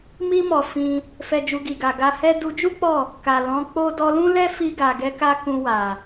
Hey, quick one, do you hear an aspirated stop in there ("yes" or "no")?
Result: no